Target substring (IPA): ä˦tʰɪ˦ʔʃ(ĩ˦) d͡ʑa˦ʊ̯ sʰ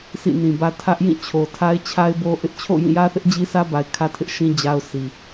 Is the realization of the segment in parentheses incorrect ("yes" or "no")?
no